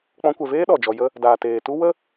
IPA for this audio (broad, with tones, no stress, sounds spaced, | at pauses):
k͡p ɔ̃˧ kʷ ɛ˨ v eː˦ ɗ ɔ˨ d͡ʒ ɔ˧ j ə˦ | d aː˨ t eː˨ t u˦ w ə˦